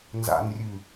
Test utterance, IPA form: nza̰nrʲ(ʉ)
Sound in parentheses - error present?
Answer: no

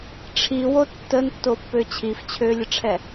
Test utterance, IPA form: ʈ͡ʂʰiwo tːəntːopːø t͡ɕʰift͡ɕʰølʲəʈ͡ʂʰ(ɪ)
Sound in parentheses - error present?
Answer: yes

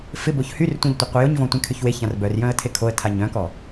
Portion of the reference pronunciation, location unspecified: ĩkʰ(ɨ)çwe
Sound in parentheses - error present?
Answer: yes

